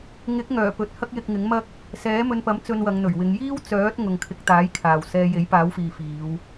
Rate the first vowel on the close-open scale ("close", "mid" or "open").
close